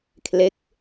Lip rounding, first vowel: unrounded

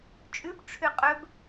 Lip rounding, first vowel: rounded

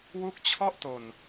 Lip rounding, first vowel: rounded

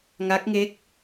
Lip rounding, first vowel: unrounded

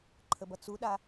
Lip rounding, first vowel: unrounded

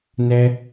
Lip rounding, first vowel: unrounded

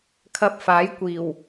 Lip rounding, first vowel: unrounded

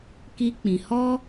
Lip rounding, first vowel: unrounded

